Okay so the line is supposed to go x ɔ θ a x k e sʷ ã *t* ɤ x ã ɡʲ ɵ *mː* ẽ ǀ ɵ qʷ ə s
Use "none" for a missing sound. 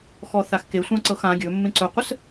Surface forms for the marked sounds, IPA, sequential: ǀ, mː

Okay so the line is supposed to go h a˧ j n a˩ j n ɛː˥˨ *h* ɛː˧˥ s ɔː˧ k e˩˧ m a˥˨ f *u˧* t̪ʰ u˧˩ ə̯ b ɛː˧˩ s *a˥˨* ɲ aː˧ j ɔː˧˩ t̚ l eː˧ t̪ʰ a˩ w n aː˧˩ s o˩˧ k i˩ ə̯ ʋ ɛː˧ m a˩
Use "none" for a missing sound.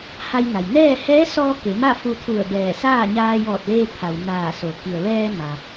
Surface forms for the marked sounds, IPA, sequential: h, u˧, aː˥˨

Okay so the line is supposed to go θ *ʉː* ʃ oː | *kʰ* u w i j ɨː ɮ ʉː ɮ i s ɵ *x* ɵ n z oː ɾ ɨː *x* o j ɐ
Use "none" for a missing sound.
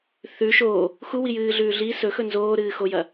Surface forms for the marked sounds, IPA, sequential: ʉ, x, x, x

